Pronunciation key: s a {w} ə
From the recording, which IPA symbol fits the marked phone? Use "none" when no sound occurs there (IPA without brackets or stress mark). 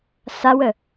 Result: w